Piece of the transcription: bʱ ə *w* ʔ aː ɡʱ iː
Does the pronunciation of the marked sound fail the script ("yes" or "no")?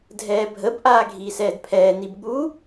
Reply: yes